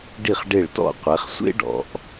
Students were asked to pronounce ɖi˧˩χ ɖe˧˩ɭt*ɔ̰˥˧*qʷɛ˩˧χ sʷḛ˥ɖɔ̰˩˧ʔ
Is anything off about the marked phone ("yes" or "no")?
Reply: no